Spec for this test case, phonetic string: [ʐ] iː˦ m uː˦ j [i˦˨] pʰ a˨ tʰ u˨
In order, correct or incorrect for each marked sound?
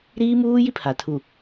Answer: incorrect: ɾ, incorrect: i˦

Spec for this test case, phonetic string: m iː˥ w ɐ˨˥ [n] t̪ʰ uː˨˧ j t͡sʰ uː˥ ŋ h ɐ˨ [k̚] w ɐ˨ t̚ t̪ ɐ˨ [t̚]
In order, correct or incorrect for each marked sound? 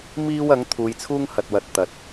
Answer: incorrect: ŋ, incorrect: t̚, correct

